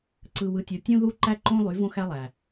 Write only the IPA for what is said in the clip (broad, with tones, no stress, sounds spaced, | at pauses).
ǀ ɯ˨ w ɯ˨ tʲ o˨ tʲ õ˦ ð u˦ ǃ æ˦ ǃ õ˦ lˠ y˨˦ v õ˦ x æ˦ lˠ æ˨